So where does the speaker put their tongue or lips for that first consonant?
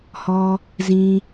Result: throat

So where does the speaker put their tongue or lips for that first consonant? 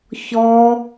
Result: palate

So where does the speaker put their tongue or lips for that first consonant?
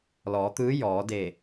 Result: tongue tip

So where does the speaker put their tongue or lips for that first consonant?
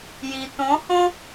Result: palate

